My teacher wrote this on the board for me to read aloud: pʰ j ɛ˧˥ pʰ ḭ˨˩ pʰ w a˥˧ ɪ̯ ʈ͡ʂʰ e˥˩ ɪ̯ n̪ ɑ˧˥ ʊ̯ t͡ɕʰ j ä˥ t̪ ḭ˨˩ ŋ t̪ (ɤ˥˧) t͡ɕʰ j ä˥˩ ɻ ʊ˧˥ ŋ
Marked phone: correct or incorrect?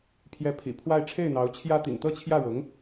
correct